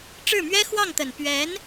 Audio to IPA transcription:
ʈ͡ʂ ɻ̩˥˩ m ɥ ɛ˥ x w ɑ˥˩ ŋ t̪ ə˨˩ n p ɥ ɛ˧˥ n

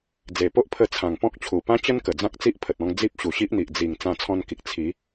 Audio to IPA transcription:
d͡z e˨˩ p o˦ ʔ pʰ ə˧ t͡sʰ ã˨˩ ŋ p ɔ̃˦ k̚ t͡ɕʰ u˨˩ p ã˦ t͡ɕ ə˦ n k ə˨˩ d͡z ã˦ k̚ t͡s i˦ ʔ pʰ ə˨ t̚ ɔ̃˧ ŋ d͡z i˦ p̚ ɕ u˨˩ ɕ i˦ ʔ n̪ i˨ ʔ d͡z i˨˩ ŋ t͡s ã˧ t͡sʰ ɔ̃˧ n k i˨ k̚ t͡sʰ i˨˦

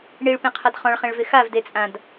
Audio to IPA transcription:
ɳ i ɭ p ẽ qʰ a d χ ɔ̃ ɭ χ ẽ ɭ v ɪ x a v d e t͡sʼ ã d

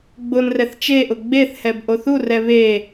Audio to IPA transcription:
ɡ͡b ʊ n r ɛ θ t͡ʃ e ʔ ʊ ɡ͡b e θ h ɛ b ʔ o θ u r ɛ β e

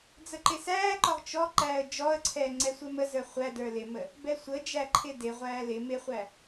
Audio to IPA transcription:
d͡z ə ǃ ɪ s æː ǃ ɔ ʁ t͡ʃ ɔ ǃ æː ə̯ d͡ʒ ɔ ə̯ ǀʰ ɛː ŋ͡ǀ ɛ sʷ ɛ m ə z ə˞ χʷ æ d ə˞ l ɪ m ə | b ɛ sʷ ə d͡ʒ æ ǃʰ ɪ d ɪ ʁʷ æː l ɪ m ɪ χʷ æ

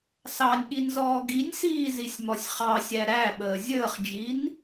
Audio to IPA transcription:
s ɑ nʲ ɠ i n z ɔː ɡ i nʲ s iː z i sʲ m ɔ sʲ χ ɑ sʲ æ ɾ æ ɓ əː zʲ əː χ d͡ʒ i n

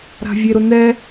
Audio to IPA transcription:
ɾ a̤ vʲ e ɾ ʊ n ɛ

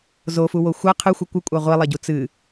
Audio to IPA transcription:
z o f u w o xʷ ɐ qʰ ɨ xʷ ɘ kʷ ɨ kʷʼ a ʁʷ i lˠ ɐ ɟ u t͡s ɨ

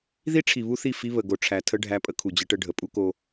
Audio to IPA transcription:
ð i˦ ʈ͡ʂʰ i˨ β u˦ θ i˦˨ f i˦ β ə˨ ɡ o˨ ʈ͡ʂʰ æ˨ tʰ ə˦ ɖʱ æ˦ pʼ ə˦ kʰ u˨ d͡ʑ ə˦ ʈ ə˦ ɖʱ ə˨ pʼ u˦ k o˦

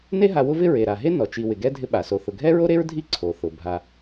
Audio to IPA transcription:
n e˦ ɦ a˨ w ʊ˦ v ɪ˦ ɹ e˩ ɾ a˩ ɦ e˥ n ɔ˩ t͡ʃ i˨ w ɪ˩ ɡ ɛ˦ dʱ ɪ˦ ɓ a˩ s o˨ θ ʊ˨ ɡʱ ɛ˥ ɹ o˥ ɾ e˥ ɹ dʱ i˦ ǀʰ o˩ θ ʊ˩ bʱ a˨

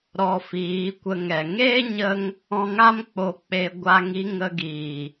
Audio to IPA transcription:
ɾ ɔ˧ f iː˨˦ kʷ ə˧ ŋ ɛ˨ ŋ eː˦ ɲ ə˧ ŋ | ɔ̃˧ ŋ a˦ m k͡p o˧ k͡p e˧ ɡʷ a˦ ŋ i˦ ŋ ə˧ ɡ iː˨

